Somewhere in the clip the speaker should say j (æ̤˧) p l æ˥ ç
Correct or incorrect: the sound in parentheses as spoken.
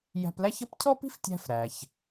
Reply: correct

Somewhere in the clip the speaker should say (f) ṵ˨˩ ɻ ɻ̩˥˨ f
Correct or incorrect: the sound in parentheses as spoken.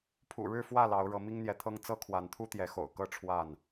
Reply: incorrect: pʰ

